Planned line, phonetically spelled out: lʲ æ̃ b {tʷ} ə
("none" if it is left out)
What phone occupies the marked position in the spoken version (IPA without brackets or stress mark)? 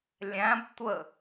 tʷ